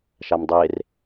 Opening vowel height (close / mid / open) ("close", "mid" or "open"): open